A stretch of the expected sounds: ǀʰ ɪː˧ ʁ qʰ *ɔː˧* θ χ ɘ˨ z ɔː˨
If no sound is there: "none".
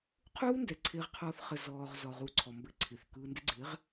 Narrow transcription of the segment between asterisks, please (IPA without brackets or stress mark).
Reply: ɔː˧